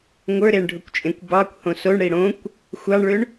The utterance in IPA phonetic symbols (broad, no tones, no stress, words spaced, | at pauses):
ŋʷə˞ɾeɳɖʱʊkʷt͡ʃʼẽkʷ bɑkʷhõ soɳɽi ɽõkʷ | xʷɑɳɭʏɳ